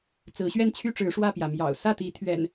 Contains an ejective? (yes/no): no